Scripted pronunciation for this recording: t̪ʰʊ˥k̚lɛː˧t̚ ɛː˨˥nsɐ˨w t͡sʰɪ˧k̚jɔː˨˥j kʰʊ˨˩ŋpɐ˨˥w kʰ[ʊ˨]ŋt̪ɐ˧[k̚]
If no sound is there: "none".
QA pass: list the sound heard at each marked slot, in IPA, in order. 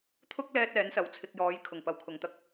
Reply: ʊ˨, k̚

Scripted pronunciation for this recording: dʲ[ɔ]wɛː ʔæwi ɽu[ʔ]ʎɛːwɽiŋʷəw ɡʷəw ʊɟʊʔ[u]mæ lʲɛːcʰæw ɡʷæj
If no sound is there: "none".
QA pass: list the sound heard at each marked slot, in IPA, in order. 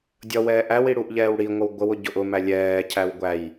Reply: ʌ, ʔ, ʊ

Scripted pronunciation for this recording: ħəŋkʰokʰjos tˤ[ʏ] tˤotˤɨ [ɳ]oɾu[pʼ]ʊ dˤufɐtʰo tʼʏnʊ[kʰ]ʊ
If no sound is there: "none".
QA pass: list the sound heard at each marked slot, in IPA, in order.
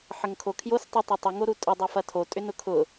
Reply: ɨ, ŋ, tʼ, kʰ

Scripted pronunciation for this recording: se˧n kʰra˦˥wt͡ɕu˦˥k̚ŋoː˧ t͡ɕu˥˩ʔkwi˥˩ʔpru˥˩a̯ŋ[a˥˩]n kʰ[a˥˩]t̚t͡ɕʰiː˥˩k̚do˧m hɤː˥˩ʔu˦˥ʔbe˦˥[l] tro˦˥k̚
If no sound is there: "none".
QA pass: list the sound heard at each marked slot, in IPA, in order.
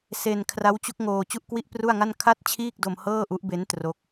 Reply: a˥˩, a˥˩, n

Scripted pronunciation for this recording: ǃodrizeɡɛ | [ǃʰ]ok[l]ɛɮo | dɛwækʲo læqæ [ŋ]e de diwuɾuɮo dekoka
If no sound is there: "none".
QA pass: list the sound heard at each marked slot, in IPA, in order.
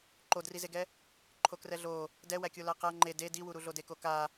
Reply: ǃʰ, r, ŋ͡ǃ

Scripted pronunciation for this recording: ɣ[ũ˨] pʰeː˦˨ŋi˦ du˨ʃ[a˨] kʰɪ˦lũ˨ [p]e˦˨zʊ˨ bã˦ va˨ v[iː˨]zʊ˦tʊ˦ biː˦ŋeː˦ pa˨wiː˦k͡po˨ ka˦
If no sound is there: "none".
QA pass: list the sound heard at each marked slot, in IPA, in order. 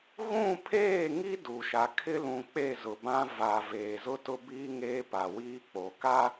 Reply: ũ˦˨, a˨, k͡p, eː˨

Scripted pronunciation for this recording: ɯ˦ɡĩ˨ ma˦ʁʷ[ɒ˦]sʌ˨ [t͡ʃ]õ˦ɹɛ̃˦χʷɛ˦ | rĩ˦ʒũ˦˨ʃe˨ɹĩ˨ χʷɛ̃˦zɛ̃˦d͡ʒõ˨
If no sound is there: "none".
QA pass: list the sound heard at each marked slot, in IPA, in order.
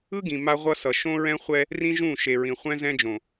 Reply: ʌ˦, ʃ

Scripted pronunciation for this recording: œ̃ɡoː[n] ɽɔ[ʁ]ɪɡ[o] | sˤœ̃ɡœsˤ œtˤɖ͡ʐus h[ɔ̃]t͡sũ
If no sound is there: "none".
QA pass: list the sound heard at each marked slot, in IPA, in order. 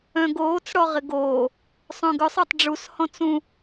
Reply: t͡s, ʁ, oː, ɔ̃

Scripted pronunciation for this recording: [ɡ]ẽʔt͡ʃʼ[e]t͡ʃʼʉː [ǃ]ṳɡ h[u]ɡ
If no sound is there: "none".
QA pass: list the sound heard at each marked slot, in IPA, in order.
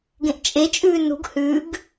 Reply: ɡ, e, n, ʉ

